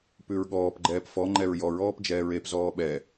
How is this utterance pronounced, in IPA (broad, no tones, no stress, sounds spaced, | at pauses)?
p ʉ ɹ ɠ ɔː p ɡ͡ǃ ɛː p f ɔ ŋ͡ǃ ɛ ɹ j ɔ ɹ ɔː p d͡ʒ ɛː ɹ e p z ɔː ɓ ɛ